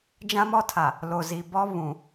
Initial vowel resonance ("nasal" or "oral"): nasal